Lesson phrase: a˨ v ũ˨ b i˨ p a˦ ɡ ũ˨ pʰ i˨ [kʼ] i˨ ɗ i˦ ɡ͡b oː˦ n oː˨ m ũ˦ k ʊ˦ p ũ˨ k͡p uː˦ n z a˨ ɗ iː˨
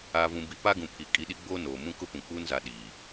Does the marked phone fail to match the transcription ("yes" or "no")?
no